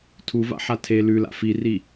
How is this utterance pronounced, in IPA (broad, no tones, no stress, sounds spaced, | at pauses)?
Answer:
tʰ u v a̰ ħ a tʰ e l ʉ l a̰ f i r i